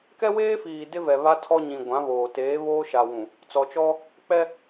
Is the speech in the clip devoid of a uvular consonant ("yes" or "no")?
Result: yes